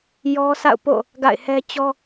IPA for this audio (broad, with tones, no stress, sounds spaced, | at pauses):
j ɔ˦ sʰ a̰˦˨ ʊ̯ p o̰˦˨ | ɡ a̰˦˨ ɪ̯ h ɛ˦ t͡ɕ ɔ˦